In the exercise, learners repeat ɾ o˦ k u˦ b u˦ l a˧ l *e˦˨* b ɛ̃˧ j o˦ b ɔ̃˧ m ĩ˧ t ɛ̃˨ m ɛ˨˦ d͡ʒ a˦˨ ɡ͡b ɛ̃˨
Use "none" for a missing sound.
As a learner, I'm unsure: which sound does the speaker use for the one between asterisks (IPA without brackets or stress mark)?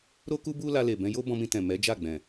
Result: e˨